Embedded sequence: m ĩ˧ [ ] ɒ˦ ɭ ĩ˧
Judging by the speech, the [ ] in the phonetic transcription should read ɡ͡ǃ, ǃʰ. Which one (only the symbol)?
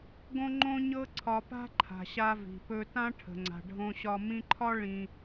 ǃʰ